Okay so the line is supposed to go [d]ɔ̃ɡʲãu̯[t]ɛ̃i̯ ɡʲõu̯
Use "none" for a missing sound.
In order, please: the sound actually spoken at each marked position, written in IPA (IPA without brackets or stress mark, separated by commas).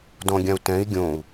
d, t